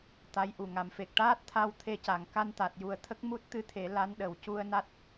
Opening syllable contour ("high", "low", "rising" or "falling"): rising